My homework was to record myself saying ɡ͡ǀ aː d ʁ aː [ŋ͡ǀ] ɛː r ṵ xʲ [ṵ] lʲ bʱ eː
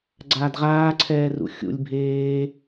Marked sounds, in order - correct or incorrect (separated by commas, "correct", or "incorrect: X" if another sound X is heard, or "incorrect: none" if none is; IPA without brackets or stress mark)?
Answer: incorrect: ǀʰ, correct